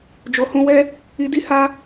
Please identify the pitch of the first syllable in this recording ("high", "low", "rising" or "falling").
low